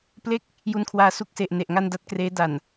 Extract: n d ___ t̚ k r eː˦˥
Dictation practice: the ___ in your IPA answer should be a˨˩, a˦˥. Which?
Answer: a˦˥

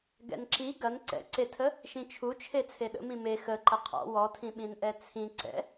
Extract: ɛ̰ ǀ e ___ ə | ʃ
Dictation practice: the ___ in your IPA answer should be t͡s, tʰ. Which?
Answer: tʰ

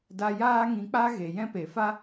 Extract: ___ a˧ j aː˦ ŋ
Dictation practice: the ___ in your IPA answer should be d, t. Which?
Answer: d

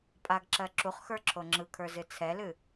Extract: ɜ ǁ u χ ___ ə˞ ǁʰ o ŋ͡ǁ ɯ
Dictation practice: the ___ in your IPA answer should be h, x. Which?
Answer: x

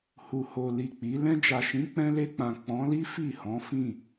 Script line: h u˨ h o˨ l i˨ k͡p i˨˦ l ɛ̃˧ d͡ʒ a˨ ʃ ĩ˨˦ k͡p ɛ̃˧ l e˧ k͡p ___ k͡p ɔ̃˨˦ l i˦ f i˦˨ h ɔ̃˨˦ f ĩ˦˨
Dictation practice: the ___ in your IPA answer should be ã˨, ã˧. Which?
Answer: ã˨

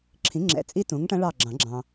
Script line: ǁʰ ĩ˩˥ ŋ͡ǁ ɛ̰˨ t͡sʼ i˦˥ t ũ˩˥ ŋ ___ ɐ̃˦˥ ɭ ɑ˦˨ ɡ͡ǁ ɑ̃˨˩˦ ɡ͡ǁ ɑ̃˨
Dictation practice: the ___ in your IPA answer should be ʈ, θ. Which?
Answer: ʈ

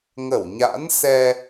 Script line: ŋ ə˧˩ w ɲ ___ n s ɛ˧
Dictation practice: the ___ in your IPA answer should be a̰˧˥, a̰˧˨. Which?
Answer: a̰˧˥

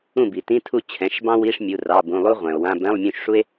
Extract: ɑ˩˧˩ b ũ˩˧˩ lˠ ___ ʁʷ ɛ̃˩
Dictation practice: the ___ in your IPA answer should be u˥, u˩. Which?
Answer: u˥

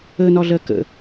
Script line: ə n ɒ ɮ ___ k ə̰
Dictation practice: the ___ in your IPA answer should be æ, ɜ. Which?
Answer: ɜ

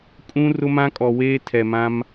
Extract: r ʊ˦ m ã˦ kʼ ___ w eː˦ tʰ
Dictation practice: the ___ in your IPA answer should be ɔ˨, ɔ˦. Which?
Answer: ɔ˨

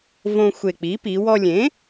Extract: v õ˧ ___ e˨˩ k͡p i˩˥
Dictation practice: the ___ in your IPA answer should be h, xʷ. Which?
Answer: xʷ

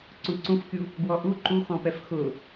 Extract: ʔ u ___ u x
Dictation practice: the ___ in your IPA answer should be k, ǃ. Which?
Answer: ǃ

